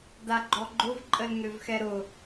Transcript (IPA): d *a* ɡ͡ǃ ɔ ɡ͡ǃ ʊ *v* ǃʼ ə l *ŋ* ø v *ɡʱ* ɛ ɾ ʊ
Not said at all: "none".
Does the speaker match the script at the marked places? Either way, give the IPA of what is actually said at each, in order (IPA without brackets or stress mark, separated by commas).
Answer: a, v, ŋ, x